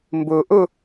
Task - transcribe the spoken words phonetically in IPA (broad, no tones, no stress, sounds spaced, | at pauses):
m b o ʔ o